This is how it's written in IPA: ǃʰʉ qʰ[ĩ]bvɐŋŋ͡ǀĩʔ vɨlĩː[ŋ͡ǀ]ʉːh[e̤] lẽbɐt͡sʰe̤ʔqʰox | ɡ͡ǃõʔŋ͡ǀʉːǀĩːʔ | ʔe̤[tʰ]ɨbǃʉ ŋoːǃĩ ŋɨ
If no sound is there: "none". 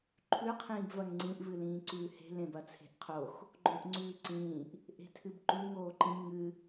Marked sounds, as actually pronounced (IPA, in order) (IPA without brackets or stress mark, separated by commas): ĩː, ǀ, e̤, tʰ